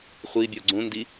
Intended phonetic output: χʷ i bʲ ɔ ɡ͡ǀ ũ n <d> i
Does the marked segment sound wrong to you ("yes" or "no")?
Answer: no